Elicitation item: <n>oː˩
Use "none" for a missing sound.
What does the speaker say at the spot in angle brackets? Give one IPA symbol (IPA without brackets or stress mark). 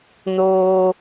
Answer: n